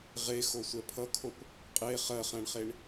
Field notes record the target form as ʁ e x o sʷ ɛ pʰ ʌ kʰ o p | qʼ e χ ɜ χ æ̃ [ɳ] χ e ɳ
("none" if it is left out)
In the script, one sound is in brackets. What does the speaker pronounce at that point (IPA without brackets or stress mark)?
ɳ